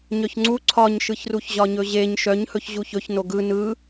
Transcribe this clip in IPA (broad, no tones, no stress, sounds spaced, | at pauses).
ɲ œ ç ŋ͡ǀ u ǀʰ ɒ ɲ ʃ ɯ ç r u ç ʑ ɒ ɲ ɵ ʑ e ɲ ʃ œ ɲ h ɵ ç ʑ u ç ɵ ç n o ɡ ɯ n ɯ